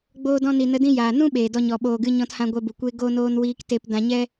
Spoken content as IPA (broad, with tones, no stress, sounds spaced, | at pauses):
ɡ͡b oː˧ d ɔ̃˧ n i˨ n ə˧ d ĩ˧ j aː˨ n ũ˦ ɓ eː˨ d ɔ˧ ɲ ɔ˨ ɓ oː˨ ɡ ɨ˧ ɲ ɔ̃˧ t h ã˧ ɡʷ ɛ˧ b u˨ kʷ e˦ ɡ o˦ n oː˦ n w iː˦ k t e˦ p d ã˧ ɲ ɛ˦